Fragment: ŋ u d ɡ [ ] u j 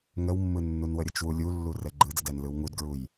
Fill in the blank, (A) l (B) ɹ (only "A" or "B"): B